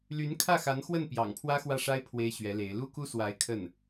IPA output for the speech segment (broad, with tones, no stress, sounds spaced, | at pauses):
l y˧˥ n kʰ ä˥˩ x a˧˥ n x w ə˥˩ n p j ɑ̰˨˩ ŋ pʰ w ä˥ x w ä˥˩ ʂ a˥ ɪ̯ pʰ w e˥ ɪ̯ ɕ ɥ ɛ˧˥ l e˧˥ ɪ̯ l u˥ k u˥ s w a˧˥ ɪ̯ kʰ ə˥˩ n